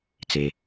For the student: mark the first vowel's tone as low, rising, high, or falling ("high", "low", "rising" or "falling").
low